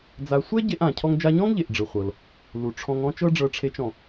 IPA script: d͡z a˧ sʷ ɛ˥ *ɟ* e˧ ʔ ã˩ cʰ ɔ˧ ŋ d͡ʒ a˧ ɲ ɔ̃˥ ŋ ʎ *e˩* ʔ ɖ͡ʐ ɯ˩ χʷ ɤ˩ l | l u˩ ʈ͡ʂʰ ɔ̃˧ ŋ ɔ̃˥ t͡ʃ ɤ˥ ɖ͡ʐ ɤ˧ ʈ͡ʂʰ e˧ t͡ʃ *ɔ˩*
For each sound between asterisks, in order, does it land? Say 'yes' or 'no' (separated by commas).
yes, yes, no